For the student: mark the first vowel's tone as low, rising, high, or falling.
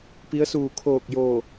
rising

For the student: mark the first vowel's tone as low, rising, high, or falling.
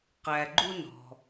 low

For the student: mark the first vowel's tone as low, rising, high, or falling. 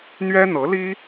high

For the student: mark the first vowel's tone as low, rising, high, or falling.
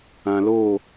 low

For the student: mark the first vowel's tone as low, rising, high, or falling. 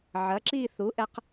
rising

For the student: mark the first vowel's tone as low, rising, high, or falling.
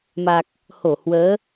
low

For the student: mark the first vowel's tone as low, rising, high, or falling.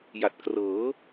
low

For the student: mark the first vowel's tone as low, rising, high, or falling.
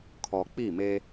low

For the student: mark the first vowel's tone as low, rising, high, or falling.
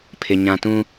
low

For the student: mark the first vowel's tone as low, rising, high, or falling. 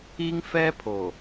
high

